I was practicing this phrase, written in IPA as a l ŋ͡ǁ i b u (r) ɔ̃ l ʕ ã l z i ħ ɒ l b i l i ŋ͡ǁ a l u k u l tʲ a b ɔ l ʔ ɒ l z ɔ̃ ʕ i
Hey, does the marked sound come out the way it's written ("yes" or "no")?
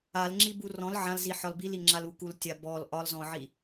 yes